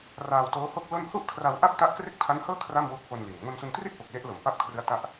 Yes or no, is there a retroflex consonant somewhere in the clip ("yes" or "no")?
no